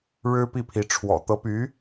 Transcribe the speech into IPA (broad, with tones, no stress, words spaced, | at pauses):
ɻɻ̩˥pi˥˩pʰi˧˥ ʈ͡ʂʰwɔ̰˨˩ t̪ɤ˧˥py˧˥